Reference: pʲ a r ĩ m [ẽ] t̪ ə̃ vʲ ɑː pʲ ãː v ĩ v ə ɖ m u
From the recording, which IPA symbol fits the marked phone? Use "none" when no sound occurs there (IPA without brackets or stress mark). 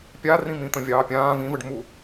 ĩ